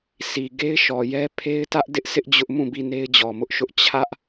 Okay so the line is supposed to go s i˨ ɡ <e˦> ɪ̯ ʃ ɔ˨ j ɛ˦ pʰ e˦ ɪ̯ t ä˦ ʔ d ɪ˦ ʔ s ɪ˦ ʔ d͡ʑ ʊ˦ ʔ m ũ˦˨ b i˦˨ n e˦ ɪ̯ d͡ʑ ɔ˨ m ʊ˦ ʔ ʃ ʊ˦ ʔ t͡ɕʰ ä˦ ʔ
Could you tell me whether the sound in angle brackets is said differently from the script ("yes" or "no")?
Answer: no